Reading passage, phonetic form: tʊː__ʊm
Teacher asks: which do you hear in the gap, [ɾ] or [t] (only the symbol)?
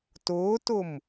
t